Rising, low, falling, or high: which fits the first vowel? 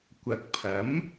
low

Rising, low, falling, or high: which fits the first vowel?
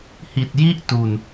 low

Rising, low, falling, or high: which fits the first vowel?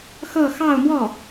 falling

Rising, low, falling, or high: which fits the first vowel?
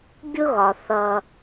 high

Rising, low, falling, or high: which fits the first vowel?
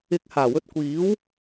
rising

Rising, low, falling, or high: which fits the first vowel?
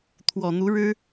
low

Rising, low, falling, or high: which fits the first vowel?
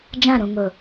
falling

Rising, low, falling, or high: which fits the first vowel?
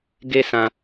high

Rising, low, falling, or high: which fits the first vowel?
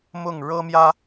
falling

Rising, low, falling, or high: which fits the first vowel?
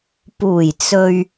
low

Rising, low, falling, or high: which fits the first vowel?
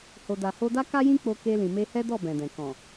low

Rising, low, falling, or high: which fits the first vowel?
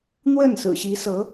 falling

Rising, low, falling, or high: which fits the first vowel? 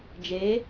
rising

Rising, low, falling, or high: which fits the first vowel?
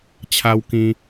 high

